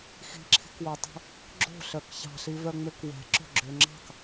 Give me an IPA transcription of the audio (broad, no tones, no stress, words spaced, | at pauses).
xi̤ǁʰi̤kwotˤo̤ | ɡ͡ǁo̤ɬœk çɑ̤ɬivœŋ͡møk wɛ̤ǁo̤ɡ͡ǁø ŋ͡ǁɑ̤k